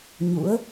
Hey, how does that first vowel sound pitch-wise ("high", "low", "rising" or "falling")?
rising